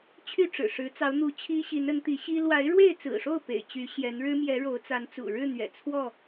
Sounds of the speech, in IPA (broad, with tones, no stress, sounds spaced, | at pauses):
t͡ɕʰ y˥˨ ʈ͡ʂ ɻ̩˨˩ ʂ ɻ̩˨˦ t͡s ɑ˨˦ ʊ̯ n̪ u˨˦ t͡ɕʰ i˦ ɕ i˨˦ n ə˨˦ n t̪ i˨˦ ɕ i˦ l w a˨˦ ɪ̯ ɻ w e˥˨ ɪ̯ t͡s ɹ̩˨˩ ʂ o˥˨ ʊ̯ p ḛ˨˩ ɪ̯ t͡ɕ y˨˦ ɕ j ɛ˨˦ n ɻ ɻ̩˦ m j ɛ˨˦ ɻ o˨˦ ʊ̯ t͡s a˨˦ n t͡s ṵ˨˩ ɻ ɻ̩˥˨ n̪ ɥ ɛ̰˨˩ t͡sʰ w ɔ˥˨